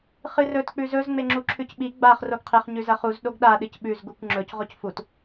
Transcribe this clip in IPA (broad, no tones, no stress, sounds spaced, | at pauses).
χ ɨ r ɵ t k͡p ʉ z ɵ z ŋ͡m e ŋ͡ǁ u ǁʰ ʉ c ɓ i ɡ͡b a χ r o ɡ qʰ e χ ɲ ʉ z ɐ χ u z ɗ o ɡ ɗ a ɗ ɨ c ɓ ʉ z ɡ u kʷ ŋ͡ǁ ɵ c ʁ o c f u t